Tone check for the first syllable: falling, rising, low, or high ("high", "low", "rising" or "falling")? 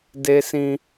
high